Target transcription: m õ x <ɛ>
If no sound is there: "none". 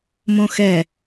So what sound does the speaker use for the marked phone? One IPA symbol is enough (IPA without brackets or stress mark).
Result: ɛ